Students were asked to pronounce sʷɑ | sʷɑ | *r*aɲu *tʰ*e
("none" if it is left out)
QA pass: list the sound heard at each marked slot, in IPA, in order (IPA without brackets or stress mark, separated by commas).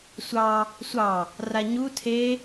r, tʰ